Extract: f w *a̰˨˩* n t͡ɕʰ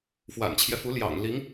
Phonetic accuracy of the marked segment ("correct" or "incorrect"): correct